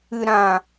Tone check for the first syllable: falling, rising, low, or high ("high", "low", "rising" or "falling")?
low